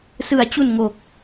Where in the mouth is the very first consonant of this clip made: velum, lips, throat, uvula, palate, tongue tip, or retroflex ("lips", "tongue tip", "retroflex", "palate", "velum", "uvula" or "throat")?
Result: tongue tip